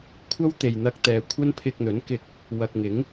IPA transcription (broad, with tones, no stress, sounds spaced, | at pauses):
kʷʰ ɐ˥ w t̪ e˨ j n̪ ɐ˧ k̚ t̪ ɛː˨ kʷʰ ɐ˥ n pʰ ɪ˧ k̚ n̪ ɵ˨˥ n k ɪ˧ k̚ | w ɐ˨ k̚ ŋ ɪ˨˥ ŋ